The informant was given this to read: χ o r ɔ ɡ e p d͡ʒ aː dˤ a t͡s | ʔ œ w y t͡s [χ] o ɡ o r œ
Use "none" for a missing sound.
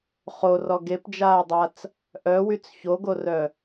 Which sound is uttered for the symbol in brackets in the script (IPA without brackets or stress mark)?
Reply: ç